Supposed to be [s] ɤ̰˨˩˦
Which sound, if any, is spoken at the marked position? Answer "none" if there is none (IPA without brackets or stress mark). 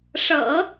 ʂ